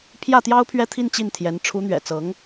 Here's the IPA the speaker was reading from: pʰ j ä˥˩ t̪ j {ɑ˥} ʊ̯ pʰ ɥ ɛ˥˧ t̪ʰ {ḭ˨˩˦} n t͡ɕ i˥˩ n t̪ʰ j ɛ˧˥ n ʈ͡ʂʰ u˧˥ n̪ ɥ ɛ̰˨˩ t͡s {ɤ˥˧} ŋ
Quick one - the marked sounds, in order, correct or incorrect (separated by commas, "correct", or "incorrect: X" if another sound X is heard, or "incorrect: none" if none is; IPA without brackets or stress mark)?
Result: correct, incorrect: i˥˧, incorrect: ɤ˧˥